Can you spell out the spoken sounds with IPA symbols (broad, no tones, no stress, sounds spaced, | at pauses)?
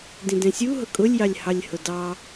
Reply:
d ĩ d ɛ̃ sʲ u ɦ ʊ kʼ ʊ lʲ j ɑ lʲ h ɑ lʲ h ʊ d ɑ